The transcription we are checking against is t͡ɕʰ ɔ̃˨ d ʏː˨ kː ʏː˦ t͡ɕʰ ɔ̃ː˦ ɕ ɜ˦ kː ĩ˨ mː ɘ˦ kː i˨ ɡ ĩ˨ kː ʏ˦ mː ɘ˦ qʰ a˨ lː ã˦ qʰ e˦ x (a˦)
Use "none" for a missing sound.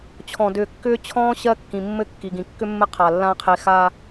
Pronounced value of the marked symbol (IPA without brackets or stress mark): a˦